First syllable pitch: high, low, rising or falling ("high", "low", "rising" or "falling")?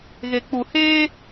low